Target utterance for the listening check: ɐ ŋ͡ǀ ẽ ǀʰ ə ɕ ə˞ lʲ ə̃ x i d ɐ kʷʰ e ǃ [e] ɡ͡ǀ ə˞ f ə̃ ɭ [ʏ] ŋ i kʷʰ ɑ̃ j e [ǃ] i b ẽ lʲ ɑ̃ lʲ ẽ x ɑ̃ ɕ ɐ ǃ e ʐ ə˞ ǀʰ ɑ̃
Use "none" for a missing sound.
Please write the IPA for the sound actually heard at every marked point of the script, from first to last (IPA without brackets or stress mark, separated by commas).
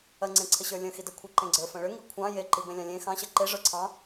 ẽ, ʏ, ǃ